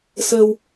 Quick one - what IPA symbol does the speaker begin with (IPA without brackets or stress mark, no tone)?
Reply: s